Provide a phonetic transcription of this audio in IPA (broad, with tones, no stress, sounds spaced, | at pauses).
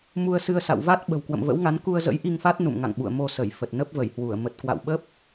m u˧ ə̯ s ɨ˧ ə̯ s a̰˧˨ w v a˦˥ t̚ ɓ ə̤˨˩ w k w ə̰˧˨ m v ə̰˧˥ w ŋ a˨˦ n k u˧ ə̯ z ə̰˧˥ j ʔ i˧ ŋ f a˦˥ t̚ n ṵ˧˨ m ŋ a̰˧˨ ŋ ɓ ṵ˧˨ ə̯ m o˧ s ə˧˩ j f ə˨˩ t̚ n ə˦˥ p̚ v ə˧˩ j h w u˧˩ ə̯ m ə˨˩ t̚ k w a̰˧˨ w ɓ ə˦˥ p̚